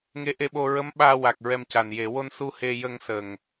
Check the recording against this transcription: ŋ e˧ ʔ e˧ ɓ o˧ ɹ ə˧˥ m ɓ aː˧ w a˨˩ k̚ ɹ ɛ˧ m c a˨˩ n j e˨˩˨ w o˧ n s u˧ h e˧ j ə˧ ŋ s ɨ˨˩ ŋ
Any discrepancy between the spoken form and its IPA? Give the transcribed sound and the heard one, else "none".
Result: ɨ˨˩ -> ə˨˩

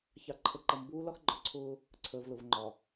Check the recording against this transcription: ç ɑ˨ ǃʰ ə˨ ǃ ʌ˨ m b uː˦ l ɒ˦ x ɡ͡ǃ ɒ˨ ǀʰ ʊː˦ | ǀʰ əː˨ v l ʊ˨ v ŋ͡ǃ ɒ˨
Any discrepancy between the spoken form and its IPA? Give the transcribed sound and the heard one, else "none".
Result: none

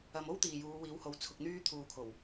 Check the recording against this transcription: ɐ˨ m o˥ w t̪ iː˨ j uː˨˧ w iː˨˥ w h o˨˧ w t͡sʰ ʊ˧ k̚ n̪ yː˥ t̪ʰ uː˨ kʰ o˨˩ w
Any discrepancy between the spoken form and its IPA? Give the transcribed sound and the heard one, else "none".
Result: none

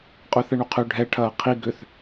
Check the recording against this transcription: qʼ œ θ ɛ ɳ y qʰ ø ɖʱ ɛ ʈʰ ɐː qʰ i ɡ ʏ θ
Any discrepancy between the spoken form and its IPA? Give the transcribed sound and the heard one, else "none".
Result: none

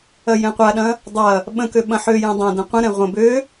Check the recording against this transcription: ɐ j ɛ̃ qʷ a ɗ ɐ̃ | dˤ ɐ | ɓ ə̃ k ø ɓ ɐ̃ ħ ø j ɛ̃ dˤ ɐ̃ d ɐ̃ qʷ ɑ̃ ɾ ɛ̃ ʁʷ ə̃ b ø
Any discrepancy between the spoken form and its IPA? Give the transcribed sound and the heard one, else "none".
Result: ɑ̃ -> ə̃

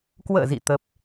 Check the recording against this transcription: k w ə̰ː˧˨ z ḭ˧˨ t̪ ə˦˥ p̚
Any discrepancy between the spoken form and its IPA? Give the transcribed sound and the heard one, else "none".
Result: none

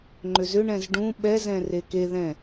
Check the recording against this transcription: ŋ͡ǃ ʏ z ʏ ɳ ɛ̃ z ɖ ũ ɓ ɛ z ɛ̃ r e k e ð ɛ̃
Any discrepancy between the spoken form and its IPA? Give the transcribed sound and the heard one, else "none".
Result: none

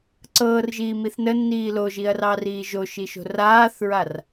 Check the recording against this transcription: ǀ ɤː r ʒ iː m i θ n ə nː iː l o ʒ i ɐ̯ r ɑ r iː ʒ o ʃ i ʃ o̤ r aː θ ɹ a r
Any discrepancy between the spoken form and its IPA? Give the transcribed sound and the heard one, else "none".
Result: none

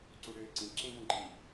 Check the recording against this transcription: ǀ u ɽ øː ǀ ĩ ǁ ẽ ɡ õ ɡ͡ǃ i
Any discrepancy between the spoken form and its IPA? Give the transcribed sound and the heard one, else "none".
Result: none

